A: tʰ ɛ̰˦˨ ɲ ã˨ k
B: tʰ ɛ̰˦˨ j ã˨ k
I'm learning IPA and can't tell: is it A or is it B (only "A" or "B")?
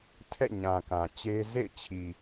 A